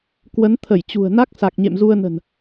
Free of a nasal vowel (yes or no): yes